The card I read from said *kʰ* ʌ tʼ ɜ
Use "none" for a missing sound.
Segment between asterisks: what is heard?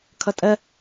kʰ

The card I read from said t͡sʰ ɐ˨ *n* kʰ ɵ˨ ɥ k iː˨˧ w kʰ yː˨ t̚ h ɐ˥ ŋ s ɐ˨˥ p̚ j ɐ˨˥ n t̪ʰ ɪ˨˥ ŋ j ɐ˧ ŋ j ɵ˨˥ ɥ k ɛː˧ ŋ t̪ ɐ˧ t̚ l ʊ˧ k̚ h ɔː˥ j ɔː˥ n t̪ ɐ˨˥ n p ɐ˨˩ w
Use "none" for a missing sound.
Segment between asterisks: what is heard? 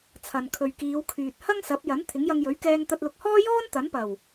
n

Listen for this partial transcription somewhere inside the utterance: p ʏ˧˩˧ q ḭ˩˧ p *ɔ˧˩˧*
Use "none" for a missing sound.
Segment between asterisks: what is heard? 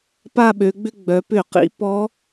ɔ˧˥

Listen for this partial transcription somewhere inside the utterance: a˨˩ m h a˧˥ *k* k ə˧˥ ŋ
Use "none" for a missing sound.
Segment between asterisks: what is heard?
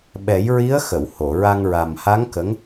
ŋ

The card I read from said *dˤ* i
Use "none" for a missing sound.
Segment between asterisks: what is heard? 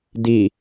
d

